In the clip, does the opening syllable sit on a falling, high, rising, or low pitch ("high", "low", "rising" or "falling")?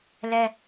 high